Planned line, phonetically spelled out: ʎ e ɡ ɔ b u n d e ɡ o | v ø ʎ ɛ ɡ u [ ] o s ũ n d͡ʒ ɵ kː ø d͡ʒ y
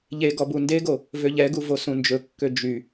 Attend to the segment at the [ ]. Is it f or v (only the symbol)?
v